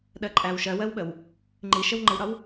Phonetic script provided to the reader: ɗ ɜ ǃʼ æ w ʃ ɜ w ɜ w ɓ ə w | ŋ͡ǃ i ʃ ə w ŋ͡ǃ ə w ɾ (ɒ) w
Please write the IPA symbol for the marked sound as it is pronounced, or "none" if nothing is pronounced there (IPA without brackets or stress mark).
ɒ